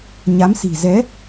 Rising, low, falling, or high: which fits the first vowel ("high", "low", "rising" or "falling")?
rising